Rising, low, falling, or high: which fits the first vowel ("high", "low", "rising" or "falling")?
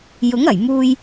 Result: rising